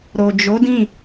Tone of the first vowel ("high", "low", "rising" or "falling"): low